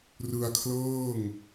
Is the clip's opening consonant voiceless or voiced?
voiced